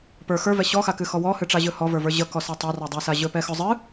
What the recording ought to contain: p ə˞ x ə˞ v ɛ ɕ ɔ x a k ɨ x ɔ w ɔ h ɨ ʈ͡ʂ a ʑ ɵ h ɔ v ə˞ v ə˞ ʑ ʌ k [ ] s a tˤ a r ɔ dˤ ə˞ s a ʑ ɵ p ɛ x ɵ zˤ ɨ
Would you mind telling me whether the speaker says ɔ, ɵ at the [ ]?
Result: ɔ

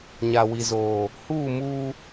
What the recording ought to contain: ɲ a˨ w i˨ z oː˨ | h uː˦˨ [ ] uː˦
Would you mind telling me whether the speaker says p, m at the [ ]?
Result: m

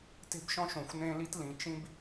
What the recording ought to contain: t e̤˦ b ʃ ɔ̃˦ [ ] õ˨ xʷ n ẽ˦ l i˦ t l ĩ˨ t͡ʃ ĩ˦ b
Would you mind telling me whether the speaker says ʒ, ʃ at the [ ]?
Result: ʃ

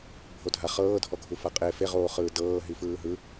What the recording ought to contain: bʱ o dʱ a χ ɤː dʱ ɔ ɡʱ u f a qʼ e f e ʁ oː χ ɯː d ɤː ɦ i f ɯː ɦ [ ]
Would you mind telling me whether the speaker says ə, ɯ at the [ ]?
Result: ɯ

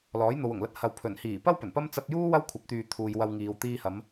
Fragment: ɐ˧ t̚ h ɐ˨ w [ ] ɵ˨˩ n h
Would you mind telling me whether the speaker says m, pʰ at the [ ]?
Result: pʰ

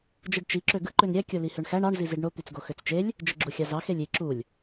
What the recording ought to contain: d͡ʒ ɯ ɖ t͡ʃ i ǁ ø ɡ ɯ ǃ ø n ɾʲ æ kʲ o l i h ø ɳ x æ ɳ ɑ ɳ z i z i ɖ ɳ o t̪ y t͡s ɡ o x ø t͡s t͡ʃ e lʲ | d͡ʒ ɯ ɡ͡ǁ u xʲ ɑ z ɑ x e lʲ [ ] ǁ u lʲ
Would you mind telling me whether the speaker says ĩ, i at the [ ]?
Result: i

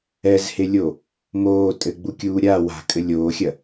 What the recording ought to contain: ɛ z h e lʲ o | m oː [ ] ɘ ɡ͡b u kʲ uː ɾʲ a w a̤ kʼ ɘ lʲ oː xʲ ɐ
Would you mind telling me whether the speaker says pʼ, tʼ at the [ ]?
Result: tʼ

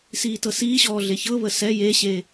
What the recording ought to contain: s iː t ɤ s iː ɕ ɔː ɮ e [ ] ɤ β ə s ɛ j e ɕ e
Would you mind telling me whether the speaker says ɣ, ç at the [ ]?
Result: ç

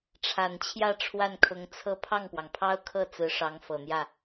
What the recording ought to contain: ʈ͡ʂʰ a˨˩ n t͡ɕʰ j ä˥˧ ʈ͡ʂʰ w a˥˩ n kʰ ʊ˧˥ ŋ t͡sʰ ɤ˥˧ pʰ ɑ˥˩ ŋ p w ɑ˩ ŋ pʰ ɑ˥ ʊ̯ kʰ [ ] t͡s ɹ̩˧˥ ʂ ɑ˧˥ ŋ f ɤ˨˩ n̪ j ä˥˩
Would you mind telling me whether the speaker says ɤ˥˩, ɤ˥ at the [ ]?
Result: ɤ˥˩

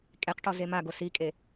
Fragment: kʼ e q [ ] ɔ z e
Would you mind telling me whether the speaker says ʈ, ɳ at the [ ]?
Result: ʈ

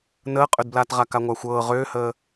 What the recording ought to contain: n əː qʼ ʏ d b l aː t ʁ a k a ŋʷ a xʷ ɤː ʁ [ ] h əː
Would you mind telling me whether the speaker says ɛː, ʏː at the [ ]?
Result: ʏː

